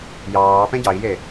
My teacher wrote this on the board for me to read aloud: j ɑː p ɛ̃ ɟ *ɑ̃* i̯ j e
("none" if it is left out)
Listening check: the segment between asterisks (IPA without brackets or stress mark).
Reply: ɑ